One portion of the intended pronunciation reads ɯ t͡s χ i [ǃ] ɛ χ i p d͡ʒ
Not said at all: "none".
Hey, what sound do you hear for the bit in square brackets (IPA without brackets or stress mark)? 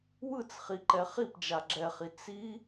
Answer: ǃ